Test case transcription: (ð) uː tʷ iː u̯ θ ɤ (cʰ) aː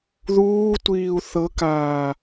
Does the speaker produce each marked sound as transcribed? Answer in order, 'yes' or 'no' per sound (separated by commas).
yes, no